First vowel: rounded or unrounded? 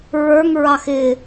unrounded